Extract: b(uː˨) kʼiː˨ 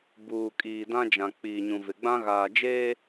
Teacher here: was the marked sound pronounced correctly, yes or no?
yes